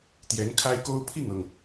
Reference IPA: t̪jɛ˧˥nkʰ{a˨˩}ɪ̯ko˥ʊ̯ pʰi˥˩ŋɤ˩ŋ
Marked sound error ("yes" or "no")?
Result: yes